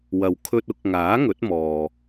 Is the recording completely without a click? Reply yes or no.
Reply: yes